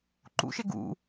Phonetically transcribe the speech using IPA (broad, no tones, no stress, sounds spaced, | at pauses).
ǃ ṵ ʃ e ɡ ṵ